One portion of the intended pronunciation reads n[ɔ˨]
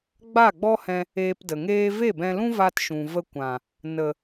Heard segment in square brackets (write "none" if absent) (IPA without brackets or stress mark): ə˨